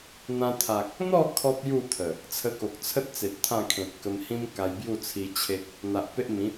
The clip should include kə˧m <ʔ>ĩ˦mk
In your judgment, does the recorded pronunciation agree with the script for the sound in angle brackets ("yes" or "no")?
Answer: no